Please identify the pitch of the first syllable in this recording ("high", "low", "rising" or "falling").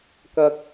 low